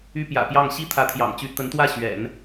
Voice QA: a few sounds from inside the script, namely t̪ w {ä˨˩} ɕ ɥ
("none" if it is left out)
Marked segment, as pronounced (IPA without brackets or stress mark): ä˥˩